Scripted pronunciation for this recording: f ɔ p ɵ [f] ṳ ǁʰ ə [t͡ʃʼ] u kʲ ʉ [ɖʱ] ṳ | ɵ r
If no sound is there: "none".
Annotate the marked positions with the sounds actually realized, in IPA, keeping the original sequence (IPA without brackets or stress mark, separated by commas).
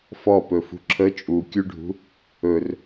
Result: f, t͡ʃʼ, ɖʱ